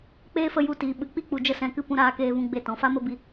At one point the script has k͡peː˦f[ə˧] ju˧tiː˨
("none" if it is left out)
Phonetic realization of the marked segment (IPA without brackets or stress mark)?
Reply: ə˧